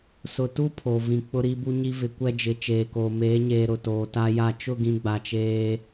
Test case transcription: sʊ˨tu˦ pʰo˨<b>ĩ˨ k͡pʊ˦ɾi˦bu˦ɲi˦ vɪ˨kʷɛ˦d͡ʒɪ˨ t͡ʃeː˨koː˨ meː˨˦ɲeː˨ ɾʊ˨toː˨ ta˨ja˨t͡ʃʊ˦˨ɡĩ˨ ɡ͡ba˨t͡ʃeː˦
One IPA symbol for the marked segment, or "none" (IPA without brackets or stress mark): v